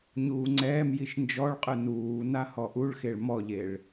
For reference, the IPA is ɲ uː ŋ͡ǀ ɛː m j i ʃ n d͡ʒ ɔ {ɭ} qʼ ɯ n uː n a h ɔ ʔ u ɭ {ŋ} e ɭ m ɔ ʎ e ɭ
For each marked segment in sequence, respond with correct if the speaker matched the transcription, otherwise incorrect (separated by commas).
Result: correct, incorrect